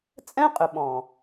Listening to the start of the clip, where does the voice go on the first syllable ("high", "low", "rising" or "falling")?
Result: high